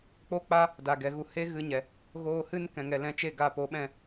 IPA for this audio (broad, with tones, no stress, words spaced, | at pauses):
k͡po˦k͡pa˦ | da˨ɡɛ˨ɣu˧ he˦ɣɨ˧ɲɛ˨ | ɣoː˧hɨ˦n kɛ̃˨ŋɛ˨lɛ̃˧t͡ʃe˦˨ ɡa˧po˨˦ɓɛ̃˧